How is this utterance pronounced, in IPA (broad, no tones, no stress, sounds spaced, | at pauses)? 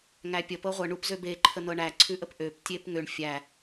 ŋ æ pʲ ə p ɤ ʁʷ ɤ ɳ u p z ø b e ǃʰ ə n̪ ɤ ɳ æ ǀʰ ʉ ʔ ə p ʔ ø p tʲ e p ŋ ø ɳ fʲ æ